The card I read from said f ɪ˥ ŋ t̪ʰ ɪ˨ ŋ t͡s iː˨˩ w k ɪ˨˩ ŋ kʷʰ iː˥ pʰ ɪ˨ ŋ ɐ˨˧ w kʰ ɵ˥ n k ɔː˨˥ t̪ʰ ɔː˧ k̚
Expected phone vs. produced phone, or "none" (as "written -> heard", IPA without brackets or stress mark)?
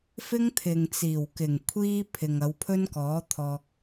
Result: kʰ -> pʰ